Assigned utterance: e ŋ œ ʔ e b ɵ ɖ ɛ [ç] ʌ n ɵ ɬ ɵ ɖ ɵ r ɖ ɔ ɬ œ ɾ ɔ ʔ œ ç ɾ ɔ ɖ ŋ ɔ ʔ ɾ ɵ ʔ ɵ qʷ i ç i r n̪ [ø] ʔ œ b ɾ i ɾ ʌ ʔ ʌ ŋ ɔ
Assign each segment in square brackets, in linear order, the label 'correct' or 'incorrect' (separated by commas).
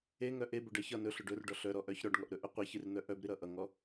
correct, incorrect